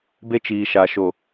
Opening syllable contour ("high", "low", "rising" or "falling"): high